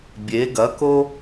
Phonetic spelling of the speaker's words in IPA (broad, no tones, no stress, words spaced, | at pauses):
bʲe ɡɐko